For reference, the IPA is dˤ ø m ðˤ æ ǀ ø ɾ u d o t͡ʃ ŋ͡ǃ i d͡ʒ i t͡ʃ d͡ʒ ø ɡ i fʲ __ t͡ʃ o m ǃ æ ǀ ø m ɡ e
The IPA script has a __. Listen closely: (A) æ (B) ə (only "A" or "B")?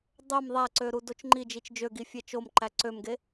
A